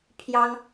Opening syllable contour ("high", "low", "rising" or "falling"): high